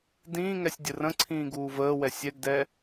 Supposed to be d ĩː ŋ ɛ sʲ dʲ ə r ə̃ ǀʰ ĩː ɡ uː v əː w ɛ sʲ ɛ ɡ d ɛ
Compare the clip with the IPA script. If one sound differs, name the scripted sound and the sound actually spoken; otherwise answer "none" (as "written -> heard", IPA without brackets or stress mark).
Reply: none